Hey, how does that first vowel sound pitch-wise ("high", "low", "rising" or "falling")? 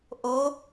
rising